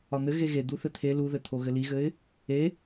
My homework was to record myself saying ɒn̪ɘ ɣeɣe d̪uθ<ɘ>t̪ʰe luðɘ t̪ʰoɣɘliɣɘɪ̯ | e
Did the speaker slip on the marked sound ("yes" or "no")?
no